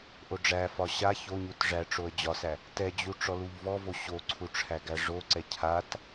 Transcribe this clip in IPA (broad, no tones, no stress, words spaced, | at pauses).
ʔoɖ͡ʐæfɒ ɕa çoɲut ʐæʈ͡ʂoə̯ d͡ʑɒsæ | tɛd͡ʑu ʈ͡ʂɔluʎvɔvo ɕoǀʰu ʈ͡ʂʰæɡæʐoǀɛ cʰat